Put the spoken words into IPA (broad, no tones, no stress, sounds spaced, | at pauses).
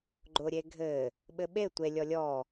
ɡ͡ǃ ʊ ɾʲ e ɡʱ ɘ | ɓ ɘ ɓ e tʷ e lʲ ɔ lʲ ɔ